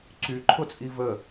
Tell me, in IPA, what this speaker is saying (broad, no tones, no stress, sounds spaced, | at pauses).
ǀ y ǃʰ ʊ t͡sʼ i v ə